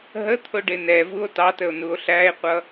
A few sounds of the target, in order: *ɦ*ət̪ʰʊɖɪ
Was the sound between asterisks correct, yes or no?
yes